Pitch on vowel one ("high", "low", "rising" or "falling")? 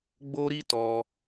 high